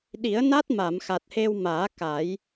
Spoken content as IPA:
ɗ i˨˩˦ ə̯ n a˦˥ t̚ m a˨˩˨ m x a˨˩ t̚ h e˧ w m aː˨˩˦ k a˨˩˦ j

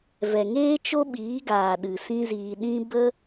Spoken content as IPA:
v ɛ˨ ŋ eː˦ t͡ʃ o˦ ɓ iː˨˦ ɡ aː˨ ɗ ɨ˨ s ĩ˦ z iː˧ ɗ ĩ˦ b ə˦

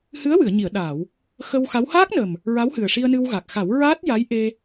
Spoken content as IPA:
h ɨ˧˥ ə̯ w ɨ˨˩˨ ə̯ ɲ i˨˩˨ ə̯ ɗ aː˨˩˨ w | x ə˧ w x a˧˥ w h aː˦˥ k̚ n ə˨˩ m | ɹ a˧˥ w h ɨ˨˩ ə̯ ʂ i˧ ə̯ n ɨ˧ w ɣ a˨˩ k̚ x a˨˩˦ w ɹ aː˦˥ t̚ j a˧˥ j ʔ e˧

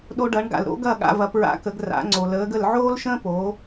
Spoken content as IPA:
ɗ o˧ ɖ ɐ˩˥ ɳ ɡ a̰˩ l ɾ o̰˥ ɡ ɐ˥˩ ɠ a̰˧ v ɐ˩˥ p ɹ a̰˧ k ə˩˥ ɡ r a̰˩˥ ŋ͡ǀ o˩ l əː˩˥ ɡ ə˥˩ l ʕ oː˥ l ʃ ə̃ː˥ p o˩˥

